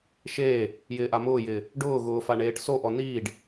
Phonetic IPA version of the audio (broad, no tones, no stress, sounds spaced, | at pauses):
ʃ eː | j ɪː ʔ a m ʊː j ɪː | ɖ ʊː ɣ ʊː f a ɳ eː ʈ s o ʔ ɔ n iː ɖ